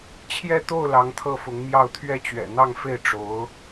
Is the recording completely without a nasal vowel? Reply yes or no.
yes